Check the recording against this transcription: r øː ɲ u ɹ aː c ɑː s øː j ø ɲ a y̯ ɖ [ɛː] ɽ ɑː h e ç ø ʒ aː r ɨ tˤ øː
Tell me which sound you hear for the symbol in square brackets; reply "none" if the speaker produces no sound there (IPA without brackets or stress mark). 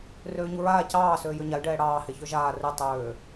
ɛː